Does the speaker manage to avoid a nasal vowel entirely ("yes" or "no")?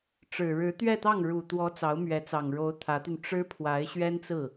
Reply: yes